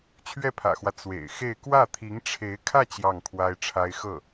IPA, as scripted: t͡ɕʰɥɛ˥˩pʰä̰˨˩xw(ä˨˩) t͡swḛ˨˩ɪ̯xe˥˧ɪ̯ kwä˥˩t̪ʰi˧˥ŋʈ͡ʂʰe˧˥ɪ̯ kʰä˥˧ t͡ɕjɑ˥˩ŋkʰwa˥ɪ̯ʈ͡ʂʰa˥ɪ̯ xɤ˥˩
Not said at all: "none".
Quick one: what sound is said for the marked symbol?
ä˦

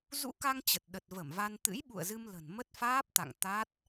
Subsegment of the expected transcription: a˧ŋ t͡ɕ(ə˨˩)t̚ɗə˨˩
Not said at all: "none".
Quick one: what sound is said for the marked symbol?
ə˨˩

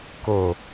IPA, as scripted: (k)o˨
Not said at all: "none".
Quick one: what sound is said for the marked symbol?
k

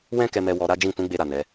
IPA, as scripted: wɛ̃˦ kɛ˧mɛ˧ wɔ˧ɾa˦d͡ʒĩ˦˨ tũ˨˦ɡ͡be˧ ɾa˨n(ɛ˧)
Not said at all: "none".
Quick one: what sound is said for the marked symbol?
ɛ˨˦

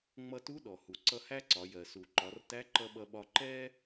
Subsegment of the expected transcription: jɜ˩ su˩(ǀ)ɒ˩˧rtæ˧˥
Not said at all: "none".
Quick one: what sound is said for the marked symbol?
ǃ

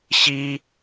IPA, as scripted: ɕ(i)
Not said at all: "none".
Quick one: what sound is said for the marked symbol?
i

